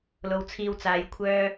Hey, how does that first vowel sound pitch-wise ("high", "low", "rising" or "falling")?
low